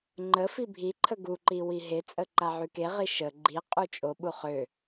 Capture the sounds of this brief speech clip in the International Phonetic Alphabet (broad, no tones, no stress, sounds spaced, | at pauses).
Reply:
ŋ͡ǃ ə f i bʱ i ǃʰ ə ɡ u ǃ i w i ɦ e t͡sʼ ə ǃ a ʕ y k e ʁ i ʃ ə ɡ͡ǃ i qʼ u t͡ʃʼ o ɓ u χ ø